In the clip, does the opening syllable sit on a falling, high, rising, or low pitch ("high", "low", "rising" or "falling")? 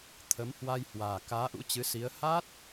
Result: rising